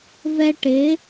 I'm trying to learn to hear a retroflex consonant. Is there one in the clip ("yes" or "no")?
yes